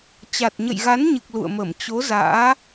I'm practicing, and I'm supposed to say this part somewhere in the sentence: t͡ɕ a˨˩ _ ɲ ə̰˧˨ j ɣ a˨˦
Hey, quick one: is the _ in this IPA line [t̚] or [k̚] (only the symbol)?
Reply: t̚